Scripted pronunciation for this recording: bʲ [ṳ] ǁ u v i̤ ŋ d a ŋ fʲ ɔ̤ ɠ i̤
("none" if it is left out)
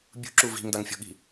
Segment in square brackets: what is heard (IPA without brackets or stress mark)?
ṳ